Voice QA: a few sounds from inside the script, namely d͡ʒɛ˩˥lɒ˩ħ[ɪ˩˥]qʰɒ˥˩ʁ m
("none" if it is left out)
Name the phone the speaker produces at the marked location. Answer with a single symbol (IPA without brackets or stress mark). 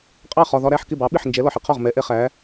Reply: ɪ˥